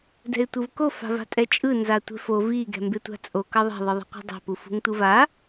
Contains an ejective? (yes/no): yes